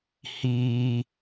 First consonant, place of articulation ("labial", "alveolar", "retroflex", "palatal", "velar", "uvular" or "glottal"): glottal